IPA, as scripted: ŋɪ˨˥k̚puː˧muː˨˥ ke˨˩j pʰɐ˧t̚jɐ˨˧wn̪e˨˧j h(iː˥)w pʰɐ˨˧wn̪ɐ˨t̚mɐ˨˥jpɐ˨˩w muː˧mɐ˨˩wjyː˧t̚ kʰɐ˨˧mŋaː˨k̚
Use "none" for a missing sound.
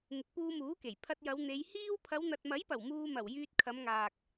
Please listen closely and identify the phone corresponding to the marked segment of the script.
iː˥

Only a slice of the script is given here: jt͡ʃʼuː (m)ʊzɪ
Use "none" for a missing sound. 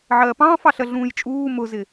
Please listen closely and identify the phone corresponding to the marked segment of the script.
m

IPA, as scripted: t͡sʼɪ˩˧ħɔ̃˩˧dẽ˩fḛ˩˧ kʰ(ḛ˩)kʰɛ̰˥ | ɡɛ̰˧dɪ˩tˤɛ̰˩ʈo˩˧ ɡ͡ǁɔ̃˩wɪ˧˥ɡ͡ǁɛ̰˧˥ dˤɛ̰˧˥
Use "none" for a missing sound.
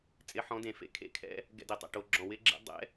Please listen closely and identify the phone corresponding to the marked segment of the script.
ḛ˧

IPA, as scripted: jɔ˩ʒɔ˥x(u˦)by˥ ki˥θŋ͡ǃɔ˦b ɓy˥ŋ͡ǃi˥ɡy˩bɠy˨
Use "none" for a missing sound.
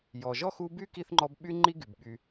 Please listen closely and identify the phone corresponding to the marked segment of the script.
u˦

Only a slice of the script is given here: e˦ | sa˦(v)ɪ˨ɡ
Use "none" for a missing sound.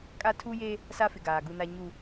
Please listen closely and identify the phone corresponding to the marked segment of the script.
f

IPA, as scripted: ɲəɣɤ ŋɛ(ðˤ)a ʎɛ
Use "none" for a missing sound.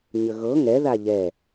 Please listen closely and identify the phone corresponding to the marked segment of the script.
ð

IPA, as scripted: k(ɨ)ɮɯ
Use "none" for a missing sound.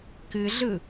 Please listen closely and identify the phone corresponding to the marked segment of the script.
ɨ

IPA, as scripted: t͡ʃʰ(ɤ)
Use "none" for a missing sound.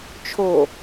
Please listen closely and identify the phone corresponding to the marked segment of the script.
o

